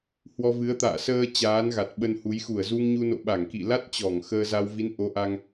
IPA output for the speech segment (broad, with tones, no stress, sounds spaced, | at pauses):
h w ɔ˧ v ɨ˨˦ ə̯ t̪ a̰ː˧˨ s əː˧ t͡ɕ aː˨˦ n ɣ a˨˩ t̚ ɓ ə˧ n h u˨˦ j x u˧˩ ə̯ z u˧ ŋ ɲ u˧ n o̰˧˨ ɓ a˧˩ ŋ k ḭ˧˨ l a˦˥ t̚ t͡ɕ ɔ˧˩ ŋ x əː˧ z a˧ w v i˨˦ n ʔ o˨˦ ʔ a˧ ŋ